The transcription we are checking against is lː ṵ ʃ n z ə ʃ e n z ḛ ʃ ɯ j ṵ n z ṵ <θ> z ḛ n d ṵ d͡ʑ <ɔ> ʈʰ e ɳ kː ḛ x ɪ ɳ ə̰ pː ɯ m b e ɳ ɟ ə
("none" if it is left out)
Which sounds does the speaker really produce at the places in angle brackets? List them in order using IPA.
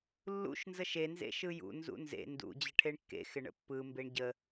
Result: n, ə

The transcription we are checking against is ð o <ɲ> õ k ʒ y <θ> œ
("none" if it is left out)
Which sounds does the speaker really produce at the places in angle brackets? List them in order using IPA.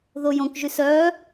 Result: j, s

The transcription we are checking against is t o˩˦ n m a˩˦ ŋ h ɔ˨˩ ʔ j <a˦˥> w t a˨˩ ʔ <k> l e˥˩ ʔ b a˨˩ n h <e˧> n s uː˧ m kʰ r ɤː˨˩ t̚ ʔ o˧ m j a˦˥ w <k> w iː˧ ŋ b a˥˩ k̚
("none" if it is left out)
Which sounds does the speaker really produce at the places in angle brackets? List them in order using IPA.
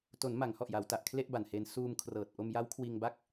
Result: a˩˦, kʰ, e˧, kʰ

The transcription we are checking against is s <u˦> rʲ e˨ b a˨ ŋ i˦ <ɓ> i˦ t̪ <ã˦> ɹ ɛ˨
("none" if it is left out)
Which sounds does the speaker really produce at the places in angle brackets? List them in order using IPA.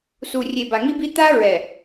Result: u˨, b, a˦

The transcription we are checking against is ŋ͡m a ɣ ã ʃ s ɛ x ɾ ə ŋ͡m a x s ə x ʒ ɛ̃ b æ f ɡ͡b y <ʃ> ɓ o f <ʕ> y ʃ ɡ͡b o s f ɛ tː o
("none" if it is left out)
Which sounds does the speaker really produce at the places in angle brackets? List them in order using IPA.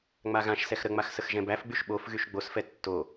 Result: ʃ, ɣ

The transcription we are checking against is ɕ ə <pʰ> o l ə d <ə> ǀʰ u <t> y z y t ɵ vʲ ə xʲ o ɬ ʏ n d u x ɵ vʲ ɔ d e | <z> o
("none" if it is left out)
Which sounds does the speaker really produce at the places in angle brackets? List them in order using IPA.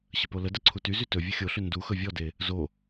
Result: p, ə, t, z

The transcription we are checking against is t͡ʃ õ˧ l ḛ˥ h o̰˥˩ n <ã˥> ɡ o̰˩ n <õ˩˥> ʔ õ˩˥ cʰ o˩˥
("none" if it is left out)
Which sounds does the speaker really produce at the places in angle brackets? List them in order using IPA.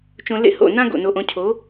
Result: ã˥, o˩˥

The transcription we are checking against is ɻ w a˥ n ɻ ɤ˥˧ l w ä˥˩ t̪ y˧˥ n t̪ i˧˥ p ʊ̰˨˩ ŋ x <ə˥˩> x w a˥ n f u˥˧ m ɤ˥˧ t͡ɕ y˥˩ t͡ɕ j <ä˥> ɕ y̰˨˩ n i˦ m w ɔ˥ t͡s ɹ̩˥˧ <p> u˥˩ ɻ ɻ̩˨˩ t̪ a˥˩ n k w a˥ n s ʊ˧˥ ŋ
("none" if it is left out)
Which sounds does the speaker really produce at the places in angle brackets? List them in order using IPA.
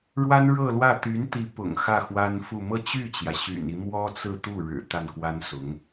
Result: ä˥˩, ä˩, t̪

